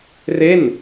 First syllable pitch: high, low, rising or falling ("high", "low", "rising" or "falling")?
falling